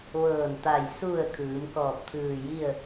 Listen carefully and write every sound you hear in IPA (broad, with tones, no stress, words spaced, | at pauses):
ʋɤː˧˩nt̪a˧˩j su˧˩ə̯ kʰɯː˩˧mkɔː˧˩p̚ t̪ʰɯː˧˩ji˥˨ə̯